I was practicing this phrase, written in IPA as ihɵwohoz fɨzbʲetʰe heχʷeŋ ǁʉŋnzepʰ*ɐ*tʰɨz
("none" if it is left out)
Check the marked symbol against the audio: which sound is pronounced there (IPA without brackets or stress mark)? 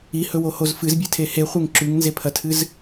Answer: ɐ